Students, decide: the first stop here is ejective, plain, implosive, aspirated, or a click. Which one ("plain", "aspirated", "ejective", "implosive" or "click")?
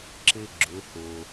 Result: click